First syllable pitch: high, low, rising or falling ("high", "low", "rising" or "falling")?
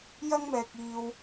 high